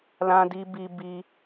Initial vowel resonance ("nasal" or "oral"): nasal